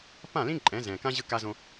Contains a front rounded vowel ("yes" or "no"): no